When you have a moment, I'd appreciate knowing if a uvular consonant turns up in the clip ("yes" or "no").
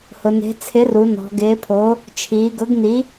no